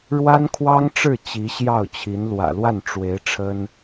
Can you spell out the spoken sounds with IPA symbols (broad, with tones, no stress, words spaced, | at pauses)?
ɻwa˥nkʰwɑ˥ŋʈ͡ʂɻ̩˥˩ t͡ɕi˧˥ɕjɑ˥˩ʊ̯t͡ɕʰi˧˥n lwä̰˨˩lwa˥˩n ʈ͡ʂwe˧˥ɪ̯ ʈ͡ʂʰə˥n